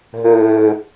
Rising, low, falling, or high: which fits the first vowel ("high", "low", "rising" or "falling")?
low